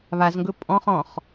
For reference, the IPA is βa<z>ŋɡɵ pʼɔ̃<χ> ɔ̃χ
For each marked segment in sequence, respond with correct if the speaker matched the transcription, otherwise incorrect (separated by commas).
correct, correct